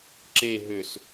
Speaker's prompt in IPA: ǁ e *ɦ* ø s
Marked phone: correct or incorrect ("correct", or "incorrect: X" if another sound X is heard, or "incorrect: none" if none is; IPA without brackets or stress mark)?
correct